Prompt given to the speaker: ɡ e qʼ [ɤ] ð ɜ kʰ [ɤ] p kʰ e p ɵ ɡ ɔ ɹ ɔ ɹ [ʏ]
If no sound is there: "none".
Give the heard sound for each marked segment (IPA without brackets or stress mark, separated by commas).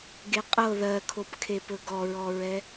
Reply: ɤ, o, ɛ